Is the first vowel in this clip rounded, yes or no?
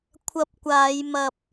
no